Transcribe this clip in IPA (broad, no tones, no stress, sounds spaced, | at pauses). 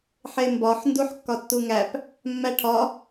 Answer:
ħ e m b ɒ ħ n d u ħ kː ɒ tː u ŋ æ p | mː æ ʈʰ ɒ